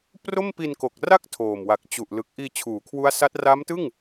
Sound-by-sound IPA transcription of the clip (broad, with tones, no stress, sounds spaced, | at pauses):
p r o˥˩ m p i˧ n k o˨˩ k̚ r a˥˩ k̚ tʰ oː˨˩ m w a˨˩ k̚ t͡ɕ u˨˩ ʔ l ɯ˨˩ k̚ ʔ iː˧ t͡ɕʰ uː˩˦ kʰ w u˦˥ a̯ s a˦˥ t̚ r a˦˥ m t ɯ˥˩ ŋ